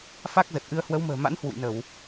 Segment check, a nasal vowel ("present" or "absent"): absent